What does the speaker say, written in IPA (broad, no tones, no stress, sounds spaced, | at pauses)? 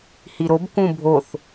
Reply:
h i ɾ o b k ũ bʱ o θ